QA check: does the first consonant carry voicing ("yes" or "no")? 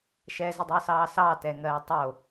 no